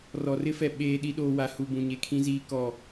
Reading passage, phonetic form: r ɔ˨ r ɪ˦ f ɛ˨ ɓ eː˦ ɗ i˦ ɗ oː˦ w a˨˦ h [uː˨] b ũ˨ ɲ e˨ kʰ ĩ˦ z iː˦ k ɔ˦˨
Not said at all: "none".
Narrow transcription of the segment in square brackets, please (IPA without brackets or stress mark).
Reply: u˨